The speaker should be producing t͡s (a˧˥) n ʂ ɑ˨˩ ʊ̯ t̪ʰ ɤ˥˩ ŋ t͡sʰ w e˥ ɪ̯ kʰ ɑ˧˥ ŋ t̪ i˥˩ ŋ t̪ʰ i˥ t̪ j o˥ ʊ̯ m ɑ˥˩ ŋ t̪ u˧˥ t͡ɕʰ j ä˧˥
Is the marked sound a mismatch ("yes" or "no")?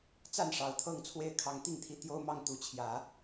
yes